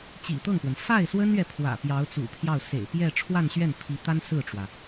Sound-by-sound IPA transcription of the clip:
t͡ɕḭ˨˩t̪ɤ˥˩ŋpwə˩n fa˥˩ɪ̯swə˥nɥɛ˨ pʰwä̰˨˩ pjɑ˧˥ʊ̯t͡sṵ˨˩pʰjɑ˥˩ʊ̯ sḛ˨˩ɪ̯ pjɛ˥˧ ʈ͡ʂʰwa˥˧nɕɥɛ˥˩n pʰi˧˥t̪a˥n sɹ̩˥˩ʈ͡ʂwä˩

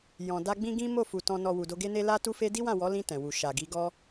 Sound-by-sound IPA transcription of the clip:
jɔ̃˨da˧ ɡ͡bĩ˦ɡĩ˦ mo˦˨fu˨ tɔ̃˨nɔ˨ wu˨do˧ɡe˦ne˦ la˦tu˦fe˦ di˦wã˦˨wɔ˨˦lĩ˧ tɛ̃˨wu˨ ʃa˨ɡi˨˦ ɡɔ˦

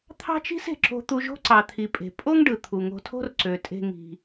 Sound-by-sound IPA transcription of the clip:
t̪ʰɑ̤˥t͡ʃi̤˥s e̤˩ǁo̤˧ t̪u˧ʒo̤˥ǀɑ˩t̪ʰi˩ pʼe̤˩ pʼo˥ŋ ɖɯ˩ t̪ʰu˩ŋo̤˧tʰo̤˥r ǀø˩tʼe̤˧ ŋi̤˩

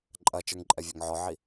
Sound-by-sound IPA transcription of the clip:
ǃʼɐt͡ʃə˞ŋǃʼɛvʲɔŋ ʕɔʕi

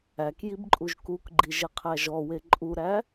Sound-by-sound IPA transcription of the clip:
ækjib ǃʼuʒkukɡ͡ǃiʒ eqʰæʒɔwe ǃʼuɾæ

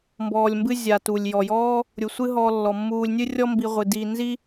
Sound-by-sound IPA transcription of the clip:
mbɔː˨lʲmbɨ˦ zʲa˨tu˩lʲjɔ˩jɔː˥ | ɾʲu˩sʷɨ˦ ɦɔː˨lːɔ˩mːuː˨lʲ nʲɨ˦ rʲɔ˦mbi˨ʁʷɨ˩diː˨ nzi˦

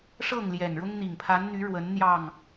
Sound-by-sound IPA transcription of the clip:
ʂɤ˥˨ŋ ljɛ˨˩nɻʊ˦ŋn̪i˨˩ŋ pʰa˨˦nn̪y˨˦ ɻwə˨˦n n̪jɑ˥˨ŋ

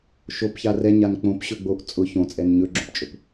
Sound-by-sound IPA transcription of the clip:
ʃopça rɛ ɲank͡põp ɕɵɡ͡boʔ t͡sʼʊ çõt͡sʼɛn ɲɵɡ͡ǁõpt͡ʃʼɵp

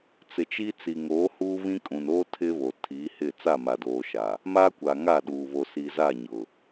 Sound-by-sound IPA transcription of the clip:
t͡sɪ˨t͡ʃi˦ t͡si˨ ŋoː˨˦ huː˦βĩ˦kʼũ˨n oː˦ tʰɪ˦βo˨ tʰiː˨˦hɪ˦˨ t͡sa˦˨ma˨doː˨ʃa˨ | ma˦kʷa˨ ŋa˦˨ɗuː˨ βo˨si˨za˦˨ ɲʊ˨

